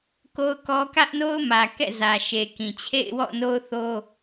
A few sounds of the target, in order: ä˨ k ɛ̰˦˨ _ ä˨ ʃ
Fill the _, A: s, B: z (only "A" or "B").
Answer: B